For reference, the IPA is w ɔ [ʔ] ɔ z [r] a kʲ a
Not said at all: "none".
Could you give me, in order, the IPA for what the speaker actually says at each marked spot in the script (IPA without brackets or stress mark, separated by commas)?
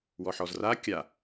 ħ, r